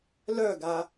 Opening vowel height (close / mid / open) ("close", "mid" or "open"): mid